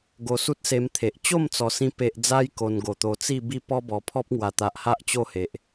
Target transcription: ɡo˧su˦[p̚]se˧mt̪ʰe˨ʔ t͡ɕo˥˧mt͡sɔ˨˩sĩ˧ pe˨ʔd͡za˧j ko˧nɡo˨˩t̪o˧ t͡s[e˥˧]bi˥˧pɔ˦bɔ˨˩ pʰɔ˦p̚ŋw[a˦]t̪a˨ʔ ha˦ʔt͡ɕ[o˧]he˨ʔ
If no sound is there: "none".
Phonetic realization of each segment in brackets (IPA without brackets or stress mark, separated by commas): t̚, i˥˧, a˨˩, o˥˧